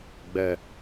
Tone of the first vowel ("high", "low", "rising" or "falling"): low